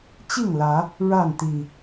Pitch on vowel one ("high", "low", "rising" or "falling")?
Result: falling